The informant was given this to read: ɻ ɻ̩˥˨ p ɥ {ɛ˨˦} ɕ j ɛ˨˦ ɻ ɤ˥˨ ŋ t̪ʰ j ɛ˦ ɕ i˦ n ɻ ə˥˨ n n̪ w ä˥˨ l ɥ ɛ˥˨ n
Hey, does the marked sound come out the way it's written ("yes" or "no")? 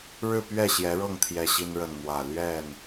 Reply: no